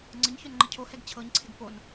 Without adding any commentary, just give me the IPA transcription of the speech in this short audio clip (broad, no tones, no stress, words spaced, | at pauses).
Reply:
ŋ͡ǀəɲ çœnŋ͡ǃəcʰohɛɡ t͡ɕʰɤɲǀʰɪɡ pon